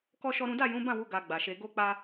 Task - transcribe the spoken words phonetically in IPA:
kɔ˦ʃɔ˦ɾũ˦ da˦˨jũ˨˦bã˦˨wu˨˦ ɡa˧ɡ͡ba˨ʃe˧ ɡo˦k͡pa˦

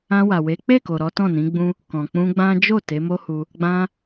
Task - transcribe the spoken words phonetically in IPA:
ã˧wa˨we˨˦ k͡pe˦˨ko˨ ɾɔ˨˦ tɔ̃˦˨nĩ˨˦ɡ͡bũ˦ | kɔ̃˨k͡pũ˧ɡ͡bã˦ d͡ʒo˦˨ te˨˦mo˦hu˧ | ɡ͡bã˧

